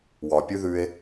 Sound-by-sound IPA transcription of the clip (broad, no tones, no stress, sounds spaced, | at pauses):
w ɒ pʲ ʉ ð ʉ e̯